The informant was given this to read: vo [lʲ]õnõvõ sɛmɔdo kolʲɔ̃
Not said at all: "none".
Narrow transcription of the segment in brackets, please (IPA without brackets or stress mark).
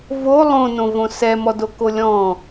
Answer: lˠ